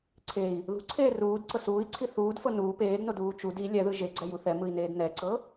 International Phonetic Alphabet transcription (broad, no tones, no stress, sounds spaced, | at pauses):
ǀʰ e i̯ | ð ṳ ǀʰ eː r uː d ǀ ɤ s uː i̯ ǀʰ i θ uː d f ɤ n uː p eː d n o d uː t͡ʃ u d i lʲ ɛ ð ɯ ʒ e ɡ͡ǀ ɛ j u θ ɛ m ɯ i̯ n eː d n ɛ ǀ ɤ